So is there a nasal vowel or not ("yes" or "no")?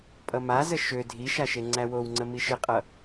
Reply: no